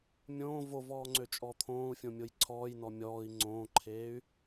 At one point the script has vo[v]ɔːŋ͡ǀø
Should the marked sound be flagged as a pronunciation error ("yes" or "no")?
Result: no